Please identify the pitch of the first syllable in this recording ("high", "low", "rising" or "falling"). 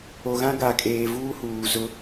low